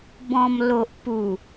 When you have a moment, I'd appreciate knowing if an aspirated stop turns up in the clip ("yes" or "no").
no